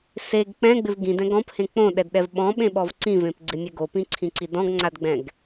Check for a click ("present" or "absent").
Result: present